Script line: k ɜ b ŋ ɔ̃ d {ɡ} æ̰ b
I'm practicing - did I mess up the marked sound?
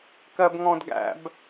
no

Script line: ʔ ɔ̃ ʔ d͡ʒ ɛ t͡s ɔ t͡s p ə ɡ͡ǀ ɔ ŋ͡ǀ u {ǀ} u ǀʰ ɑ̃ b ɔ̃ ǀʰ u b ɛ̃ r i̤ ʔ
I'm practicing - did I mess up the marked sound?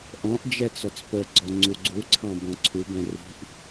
yes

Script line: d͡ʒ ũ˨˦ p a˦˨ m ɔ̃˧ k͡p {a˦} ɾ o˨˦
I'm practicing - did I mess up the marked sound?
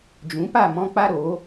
no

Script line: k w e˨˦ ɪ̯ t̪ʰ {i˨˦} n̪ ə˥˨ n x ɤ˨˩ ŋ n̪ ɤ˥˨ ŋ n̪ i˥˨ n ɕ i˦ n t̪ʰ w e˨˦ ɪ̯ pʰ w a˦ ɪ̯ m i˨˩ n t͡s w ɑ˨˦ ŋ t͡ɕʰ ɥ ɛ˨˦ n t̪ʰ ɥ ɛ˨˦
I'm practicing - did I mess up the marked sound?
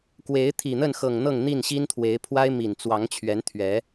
yes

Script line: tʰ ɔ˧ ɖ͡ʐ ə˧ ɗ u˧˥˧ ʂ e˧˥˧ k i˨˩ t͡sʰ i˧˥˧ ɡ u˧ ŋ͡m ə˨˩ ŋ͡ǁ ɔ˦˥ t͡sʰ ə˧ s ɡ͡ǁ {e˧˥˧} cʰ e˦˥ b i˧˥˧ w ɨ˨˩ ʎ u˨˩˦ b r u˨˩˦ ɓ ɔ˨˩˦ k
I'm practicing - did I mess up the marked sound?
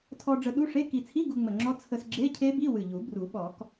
no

